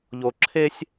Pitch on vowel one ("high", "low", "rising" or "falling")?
low